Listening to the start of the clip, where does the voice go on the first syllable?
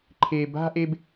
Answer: low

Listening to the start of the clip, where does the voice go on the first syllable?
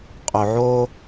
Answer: low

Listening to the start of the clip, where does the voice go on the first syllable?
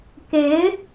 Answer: rising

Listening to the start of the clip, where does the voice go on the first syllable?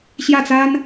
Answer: falling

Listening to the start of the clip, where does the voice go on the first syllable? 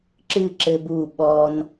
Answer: falling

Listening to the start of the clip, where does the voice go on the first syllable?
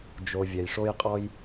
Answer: low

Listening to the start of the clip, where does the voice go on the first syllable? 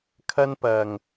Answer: high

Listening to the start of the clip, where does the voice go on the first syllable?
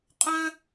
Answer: high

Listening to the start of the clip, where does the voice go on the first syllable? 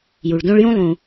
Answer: low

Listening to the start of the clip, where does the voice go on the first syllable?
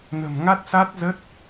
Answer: low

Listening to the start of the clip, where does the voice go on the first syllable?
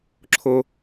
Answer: high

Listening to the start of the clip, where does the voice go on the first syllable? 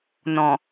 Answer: low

